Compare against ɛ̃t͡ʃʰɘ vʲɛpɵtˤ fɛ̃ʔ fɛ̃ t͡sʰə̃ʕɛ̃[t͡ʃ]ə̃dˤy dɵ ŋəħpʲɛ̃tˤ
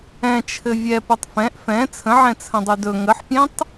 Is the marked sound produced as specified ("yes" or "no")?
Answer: no